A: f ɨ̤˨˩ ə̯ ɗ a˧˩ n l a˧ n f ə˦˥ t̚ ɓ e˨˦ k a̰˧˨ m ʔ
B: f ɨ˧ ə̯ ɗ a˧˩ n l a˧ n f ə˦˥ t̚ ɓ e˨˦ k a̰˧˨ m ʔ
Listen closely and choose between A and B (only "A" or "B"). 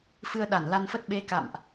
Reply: B